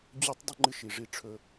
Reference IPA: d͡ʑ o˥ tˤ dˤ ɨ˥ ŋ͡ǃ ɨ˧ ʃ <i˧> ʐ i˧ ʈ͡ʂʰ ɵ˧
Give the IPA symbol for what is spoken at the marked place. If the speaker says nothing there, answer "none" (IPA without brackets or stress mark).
i˩